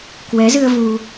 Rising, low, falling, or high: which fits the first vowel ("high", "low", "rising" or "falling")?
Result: rising